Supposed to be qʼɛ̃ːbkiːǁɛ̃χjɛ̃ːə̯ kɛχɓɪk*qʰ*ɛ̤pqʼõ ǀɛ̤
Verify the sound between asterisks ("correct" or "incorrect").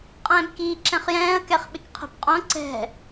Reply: correct